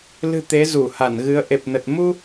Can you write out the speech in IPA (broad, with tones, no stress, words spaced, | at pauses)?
lɨ̤˨˩ t̪e˨˦zu˧˩ha˧˩nɣɨ˨˦ə̯ ʔe˨˩p̚nə˨˩t̚ mu˧